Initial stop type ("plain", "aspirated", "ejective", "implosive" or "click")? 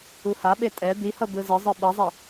implosive